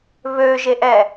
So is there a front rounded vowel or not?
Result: yes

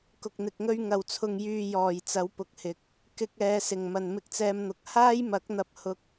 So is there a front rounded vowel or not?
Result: yes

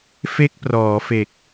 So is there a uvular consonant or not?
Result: no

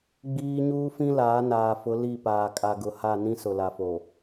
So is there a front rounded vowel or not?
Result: no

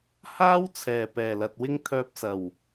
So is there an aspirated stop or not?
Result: yes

